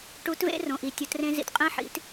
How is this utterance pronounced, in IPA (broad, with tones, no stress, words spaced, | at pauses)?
ʈu˧˥tvḛ˥rõ˩ʔi˩ tʲo˩˧trẽ˧zḭ˩t qʼĩ˧ħḭ˩˧t